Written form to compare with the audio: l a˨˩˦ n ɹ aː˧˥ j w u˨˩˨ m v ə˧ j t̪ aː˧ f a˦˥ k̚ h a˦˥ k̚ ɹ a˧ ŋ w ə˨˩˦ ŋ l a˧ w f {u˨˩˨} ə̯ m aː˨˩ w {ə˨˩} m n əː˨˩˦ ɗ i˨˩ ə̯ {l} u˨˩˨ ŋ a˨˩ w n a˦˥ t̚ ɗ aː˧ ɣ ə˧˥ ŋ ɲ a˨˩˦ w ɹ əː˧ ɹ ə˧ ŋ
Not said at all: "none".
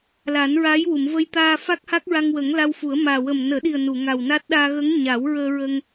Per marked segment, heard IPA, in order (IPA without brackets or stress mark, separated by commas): u˨˩˦, ə˨˩, n